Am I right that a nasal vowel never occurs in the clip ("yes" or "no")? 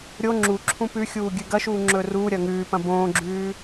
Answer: no